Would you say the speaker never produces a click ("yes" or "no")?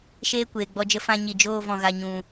yes